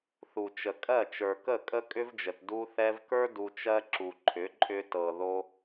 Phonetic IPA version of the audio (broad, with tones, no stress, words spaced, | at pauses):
θu˨t͡ʃə˨kʼɜ˦˨ t͡ʃə˞˨kə˦˨ kʼə˦kʼʏ˦vd͡ʒə˨t du˧θɛ˧vkə˞˦ du˧t͡ʃɜ˦ ǁu˨ǃʰʏ˨˦ǃʼʏ˧ tɤ˨ðo˧